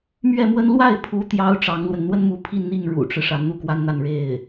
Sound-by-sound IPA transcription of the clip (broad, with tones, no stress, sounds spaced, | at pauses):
m ɥ ɛ˥˩ m w ə˥ n l w a˥˩ ɪ̯ pʰ u˧˥ t̪ j ɑ˧˥ ʊ̯ ʈ͡ʂ ɑ˧˥ ŋ l w ə˧ n n̪ w ə˥ n m u˧˥ pʰ i˥˧ n n̪ i˥˩ ŋ ɻ ṵ˨˩ ʈ͡ʂ ɻ̩˦ ʂ a˧˥ n n̪ u˥˩ k w a˥ n n̪ a˥˧ n ɻ e˥˩ ɪ̯